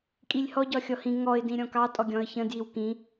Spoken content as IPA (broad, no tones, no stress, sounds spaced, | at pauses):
kʼ i lʲ h ɔ ɟ ɒ xʲ ɔ h ĩ ŋ ɔ ɪ̯ d ĩ ɾʲ ɔ̃ k ɑ tʼ ɔ ɡʲ ɔ̃ ə̯ ç ə̃ d j i w k ĩ